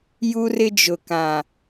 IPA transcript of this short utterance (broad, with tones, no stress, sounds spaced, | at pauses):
j u˦ r ɪ˦ d͡ʒ ʊ˨ k ã˨